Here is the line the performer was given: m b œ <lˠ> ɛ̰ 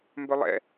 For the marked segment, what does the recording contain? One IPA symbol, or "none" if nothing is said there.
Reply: lˠ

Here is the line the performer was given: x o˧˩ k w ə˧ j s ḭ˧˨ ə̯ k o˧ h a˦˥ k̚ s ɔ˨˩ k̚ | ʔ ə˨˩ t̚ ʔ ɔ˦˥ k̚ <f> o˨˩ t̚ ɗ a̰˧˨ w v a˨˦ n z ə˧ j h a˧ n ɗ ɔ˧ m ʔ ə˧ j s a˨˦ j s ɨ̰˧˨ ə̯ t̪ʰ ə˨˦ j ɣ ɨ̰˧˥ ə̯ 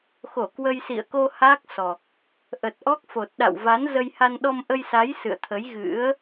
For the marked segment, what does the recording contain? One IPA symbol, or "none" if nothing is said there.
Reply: f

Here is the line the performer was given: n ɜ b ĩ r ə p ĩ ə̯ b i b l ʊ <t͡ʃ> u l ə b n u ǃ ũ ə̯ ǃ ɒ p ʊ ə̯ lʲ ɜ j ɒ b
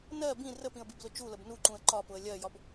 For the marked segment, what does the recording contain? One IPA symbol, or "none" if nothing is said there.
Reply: t͡ʃ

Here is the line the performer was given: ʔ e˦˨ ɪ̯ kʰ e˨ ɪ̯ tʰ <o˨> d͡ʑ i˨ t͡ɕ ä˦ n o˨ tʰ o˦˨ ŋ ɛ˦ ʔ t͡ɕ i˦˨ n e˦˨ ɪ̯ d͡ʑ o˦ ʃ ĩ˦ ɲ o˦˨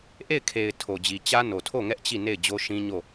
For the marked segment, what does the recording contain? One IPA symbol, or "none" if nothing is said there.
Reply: o˨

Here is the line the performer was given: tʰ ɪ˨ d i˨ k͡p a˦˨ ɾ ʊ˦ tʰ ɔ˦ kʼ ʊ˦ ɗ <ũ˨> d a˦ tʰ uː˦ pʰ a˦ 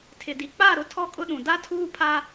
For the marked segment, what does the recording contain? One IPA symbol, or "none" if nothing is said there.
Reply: ũ˨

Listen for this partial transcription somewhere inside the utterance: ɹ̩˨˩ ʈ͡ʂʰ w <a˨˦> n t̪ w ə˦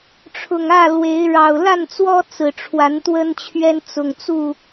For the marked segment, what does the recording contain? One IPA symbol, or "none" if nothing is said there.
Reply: a˨˦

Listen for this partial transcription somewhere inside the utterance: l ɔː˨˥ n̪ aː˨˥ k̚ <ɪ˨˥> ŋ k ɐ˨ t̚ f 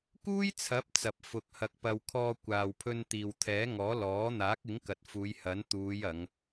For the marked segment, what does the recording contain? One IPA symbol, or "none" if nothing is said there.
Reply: ɪ˨˥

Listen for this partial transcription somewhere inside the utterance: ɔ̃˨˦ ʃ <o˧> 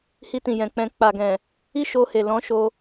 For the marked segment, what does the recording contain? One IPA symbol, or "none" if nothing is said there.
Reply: o˧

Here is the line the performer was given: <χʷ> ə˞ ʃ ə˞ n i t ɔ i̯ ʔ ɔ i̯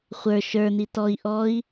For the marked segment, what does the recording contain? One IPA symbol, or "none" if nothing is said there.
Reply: χʷ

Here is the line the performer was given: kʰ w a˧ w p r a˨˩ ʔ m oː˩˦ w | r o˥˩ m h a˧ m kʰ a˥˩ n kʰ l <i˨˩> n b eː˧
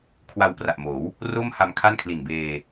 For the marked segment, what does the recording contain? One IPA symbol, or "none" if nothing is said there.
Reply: i˨˩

